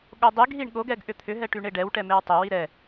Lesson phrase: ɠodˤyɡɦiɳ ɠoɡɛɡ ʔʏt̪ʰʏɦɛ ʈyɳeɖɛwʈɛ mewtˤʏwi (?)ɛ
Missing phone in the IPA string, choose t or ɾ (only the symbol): ɾ